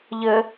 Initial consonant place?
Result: palatal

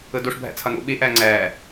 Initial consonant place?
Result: alveolar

